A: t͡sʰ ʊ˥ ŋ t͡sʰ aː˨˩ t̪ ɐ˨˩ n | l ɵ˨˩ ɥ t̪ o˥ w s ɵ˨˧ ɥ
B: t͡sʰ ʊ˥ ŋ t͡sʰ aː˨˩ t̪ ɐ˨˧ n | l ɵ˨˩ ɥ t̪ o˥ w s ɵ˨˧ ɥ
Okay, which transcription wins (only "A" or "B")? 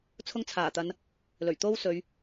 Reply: B